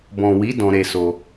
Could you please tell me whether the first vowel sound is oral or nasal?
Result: nasal